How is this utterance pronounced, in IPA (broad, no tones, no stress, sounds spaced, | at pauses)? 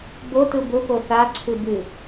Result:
b o t ɯ b ʊ p o θ a ǀʰ ɨ b ɨ